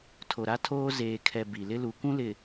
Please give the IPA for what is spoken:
tʰ o˨ ɾ a˦ tʰ oː˦ z eː˨ kʰ ɛ˨ b i˨ l ɪ˦ l u˨ kʷ ũ˦ l ɪ˨

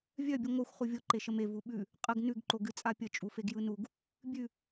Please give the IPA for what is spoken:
vʲ œ bʲ ɯ ŋʷ œ xʷ χ u vʲ o ǃ e ʃ ə m e v u ɓ ʉ | qʼ ə ɡ n ʉ ɡ ǃ o ɡ ɨ t͡sʼ a pʲ ə t͡ʃʼ u f e ɡ j ɯ n u ɡ | bʲ ʉ

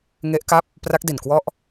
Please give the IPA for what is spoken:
ŋ e˦˥ ʔ k a˥˩ p̚ | p r a˦˥ k̚ d i˨˩ n k w ɔ˦˥ ʔ

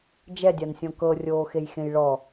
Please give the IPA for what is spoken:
d͡ʒ ɛ dʲ a n sʲ ɔ̃ k ɤ rʲ oː x e j x ẽ j ɭ ɔ

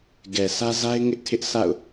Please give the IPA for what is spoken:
ɡ ɛ˨ s ä˦ z a˦ ɪ̯ ŋ ɪ˦ ʔ tʰ ɪ˦ ʔ s a̰˦˨ ʊ̯

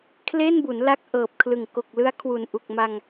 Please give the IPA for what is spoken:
kʰ l e˥˩ n b u˩˦ n l a˦˥ k̚ ʔ ɤː˨˩ p̚ kʰ l ɯ˨˩ ŋ k o˨˩ k̚ l ɯ˦˥ a̯ kʰ w u˨˩ n ʔ u˨˩ k̚ m a˧ ŋ

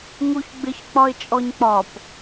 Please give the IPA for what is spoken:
ŋ u ç ɡ͡b ɪ ç k͡p ɒ ɪ̯ t͡ʃʼ ɔ ɲ k͡p ɒ p

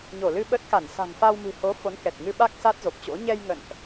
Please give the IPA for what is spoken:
ɲ o˧˩ l ɨ˧ ɓ ə˦˥ t̚ k a˧˩ n s a̤˨˩ ŋ f a˧ w m ɨ̤˨˩ h o˨˦ f o˨˦ n k ɛ˨˩ t̚ ŋ ɨ˧ ɓ a˦˥ k̚ s a˦˥ t̚ z o˨˩ p̚ t͡ɕ o̰˧˥ ɲ ɛ˧ j ŋ ə̰˧˨ n ʔ

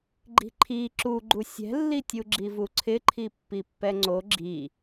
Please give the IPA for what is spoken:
ɡ͡ǃ i̤ ǃʰ i ǁ u ɡ͡ǃ u sʲ ɛ̤ lː i tʲ u ɡ͡ǁ i v u ǀʰ ɪ ǃʰ i pː i pː ɛ ŋ͡ǀ o ɡ͡ǁ i

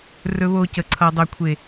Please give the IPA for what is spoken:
r ɵ˧ β o˧ c ə˨ ǀʰ ʌ˨ dˤ ɵ˨ kʷʰ e˨

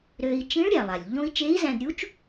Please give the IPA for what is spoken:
ɾ ø˧ i̯ t͡ʃ ĩ˧˥ ɭ ɾʲ æ˩ lˠ a˩ lʲ ʎ õ˥ i̯ t͡ʃ e˧˥ i̯ z æ̃˧ d ɾʲ u˧˥ t͡ʃ

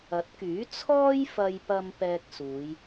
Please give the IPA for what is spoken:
ɐ˨˥ t̚ k yː˨˥ t͡sʰ ɔː˧ j f ɐ˨ j p ɐ˨ m p ɛː˧ k̚ s uː˨˧ j

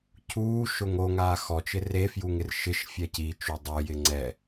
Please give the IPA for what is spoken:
cʰ uː ʃ ʊ ŋ o ŋ aː x ɔ t͡ʃ ɪ r e f j u ŋ ɪ r ʃ ɪ ʃ fʲ ɛ c i t͡ʃ u dˤ u j ɪ ŋ͡ǀ ɛ

